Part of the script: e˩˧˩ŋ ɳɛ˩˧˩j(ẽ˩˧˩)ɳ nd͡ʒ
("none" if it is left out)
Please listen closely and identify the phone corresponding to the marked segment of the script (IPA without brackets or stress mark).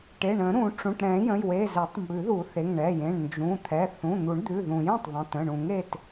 ẽ˩˧˩